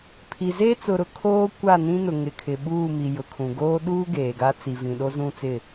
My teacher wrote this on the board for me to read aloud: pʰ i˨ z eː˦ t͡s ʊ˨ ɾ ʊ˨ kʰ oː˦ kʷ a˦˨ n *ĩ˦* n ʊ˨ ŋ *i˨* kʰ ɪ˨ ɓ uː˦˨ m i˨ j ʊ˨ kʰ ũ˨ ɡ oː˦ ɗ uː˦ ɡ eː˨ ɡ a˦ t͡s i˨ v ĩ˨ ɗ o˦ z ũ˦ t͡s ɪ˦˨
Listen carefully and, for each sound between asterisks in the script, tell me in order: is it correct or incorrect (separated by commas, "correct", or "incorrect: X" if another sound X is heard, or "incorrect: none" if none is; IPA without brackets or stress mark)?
correct, incorrect: ɪ˨